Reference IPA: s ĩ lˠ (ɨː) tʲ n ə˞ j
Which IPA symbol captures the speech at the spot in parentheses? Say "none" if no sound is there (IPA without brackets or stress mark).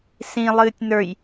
ɨː